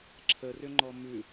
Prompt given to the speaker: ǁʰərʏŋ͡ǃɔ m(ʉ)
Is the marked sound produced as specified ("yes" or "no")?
yes